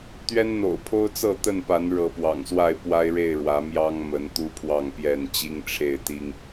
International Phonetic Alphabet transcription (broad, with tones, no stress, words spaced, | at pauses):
t̪ɥɛ˦nn̪o̰˨˩ʊ̯pʰo˦ʊ̯t͡sɤ˥˨ t̪ə˥˨npa˨˦n ɻɤ˨˦pwɑ̰˨˩ŋswa˥˨ɪ̯ pwa˦ɪ̯ɻe˥˨ɪ̯ ɻwä˨˦mjɑ˦ŋmə˨˦n t̪u˦pʰwɑ˥˨ŋpjɛ˥˨n t͡ɕi˦ŋʈ͡ʂʰe˥˨ɪ̯t̪i˦ŋ